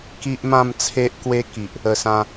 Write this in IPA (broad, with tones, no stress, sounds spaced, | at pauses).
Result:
k i˦ ʔ m ã˥˧ m t͡sʰ e˦ ʔ k w e˦ k i˨ ʔ | ə˨˩ s ã˧